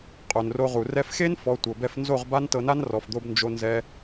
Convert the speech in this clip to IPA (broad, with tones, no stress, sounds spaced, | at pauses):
qʼ o˨ n r o˧ ʁ u˨ r ɛ˧ f x e˦ n f ɔ˨˦ tʷ ɤ˨ b ɛ˧ f n z o˦˨ ʁ b a˦ n t ɤ˧ n a˦ n r ɔ˨ f d̪ o˧ b n d͡ʒ o˦ n z ɛ˦